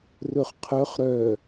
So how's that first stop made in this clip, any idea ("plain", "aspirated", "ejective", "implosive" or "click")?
aspirated